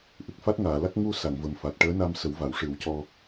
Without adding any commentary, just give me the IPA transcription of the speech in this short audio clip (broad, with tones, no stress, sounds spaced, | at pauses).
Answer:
ʔ ɨ˨˩ k̚ f a˦˥ t̚ ŋ aː˨˩˨ l a˦˥ k̚ ŋ u˧ s a˨˩˨ ŋ v ə˨˩ m f a˨˩ t̚ ʈ əː˧˥ n a˧ m s ə˨˩˦ w v a˨˩˨ w ʂ ɨ˨˩˦ w c ɔ˧